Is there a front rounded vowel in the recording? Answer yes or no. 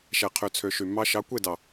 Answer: yes